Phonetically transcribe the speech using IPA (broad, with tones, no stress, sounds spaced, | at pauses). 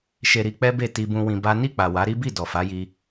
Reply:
ʃ e˨ ɾ i˨˦ k͡p ɛ˦ b e˦˨ t i˧ b ũ˧ w ĩ˧ b a˦ n i˦˨ k͡p a˨ w a˨˦ ɾ i˦ b i˦˨ d ɔ˨ f a˨˦ j i˧